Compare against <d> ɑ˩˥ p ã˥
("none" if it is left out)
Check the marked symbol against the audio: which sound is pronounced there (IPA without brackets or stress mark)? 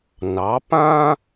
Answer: n